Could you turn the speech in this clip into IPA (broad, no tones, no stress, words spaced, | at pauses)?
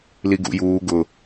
liɡṵjuː ɡʊ